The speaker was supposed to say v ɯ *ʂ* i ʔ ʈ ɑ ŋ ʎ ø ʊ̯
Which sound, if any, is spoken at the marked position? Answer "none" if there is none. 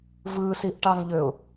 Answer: s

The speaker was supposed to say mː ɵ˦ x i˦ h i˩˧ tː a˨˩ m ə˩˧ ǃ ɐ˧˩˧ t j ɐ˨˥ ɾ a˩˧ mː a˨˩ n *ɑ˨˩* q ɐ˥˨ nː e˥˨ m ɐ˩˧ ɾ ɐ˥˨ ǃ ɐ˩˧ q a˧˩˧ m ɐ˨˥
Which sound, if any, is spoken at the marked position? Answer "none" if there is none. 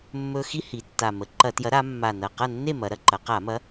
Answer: ɐ˨˩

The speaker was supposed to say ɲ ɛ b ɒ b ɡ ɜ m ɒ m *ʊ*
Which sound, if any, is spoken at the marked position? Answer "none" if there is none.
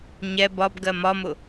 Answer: ʊ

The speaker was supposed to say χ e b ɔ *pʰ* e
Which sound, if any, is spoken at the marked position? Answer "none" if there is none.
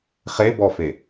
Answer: f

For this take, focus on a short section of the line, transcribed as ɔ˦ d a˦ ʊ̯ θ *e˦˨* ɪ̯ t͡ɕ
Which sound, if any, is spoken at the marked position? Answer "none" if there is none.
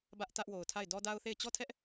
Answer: e˦˨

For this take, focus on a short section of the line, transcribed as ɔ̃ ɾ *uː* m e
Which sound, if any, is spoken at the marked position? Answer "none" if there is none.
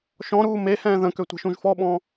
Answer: uː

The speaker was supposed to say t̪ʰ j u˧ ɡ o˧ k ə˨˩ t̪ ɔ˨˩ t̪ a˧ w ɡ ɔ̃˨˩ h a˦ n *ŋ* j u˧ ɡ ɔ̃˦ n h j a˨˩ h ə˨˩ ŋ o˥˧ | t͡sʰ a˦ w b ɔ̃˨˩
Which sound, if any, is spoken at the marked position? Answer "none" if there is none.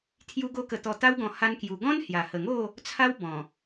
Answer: k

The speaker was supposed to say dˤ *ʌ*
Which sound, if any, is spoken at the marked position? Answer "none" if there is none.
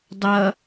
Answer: ʌ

